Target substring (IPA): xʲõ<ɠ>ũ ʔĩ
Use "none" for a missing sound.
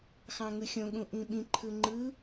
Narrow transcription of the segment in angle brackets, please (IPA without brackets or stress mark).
ɠ